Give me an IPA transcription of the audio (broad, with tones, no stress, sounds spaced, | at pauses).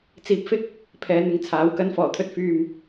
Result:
t͡s iː˧ p̚ f ɪ˥ k̚ | pʰ ɛː˨˧ n̪ ɪ˨˧ ŋ t͡sʰ aː˨˥ w k ɐ˨˧ n f ɔː˨˩ t̪ʰ ɵ˧ t̚ f yː˧ m